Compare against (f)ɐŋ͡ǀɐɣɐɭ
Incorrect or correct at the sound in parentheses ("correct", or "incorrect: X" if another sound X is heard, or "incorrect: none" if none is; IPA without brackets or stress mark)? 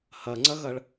incorrect: h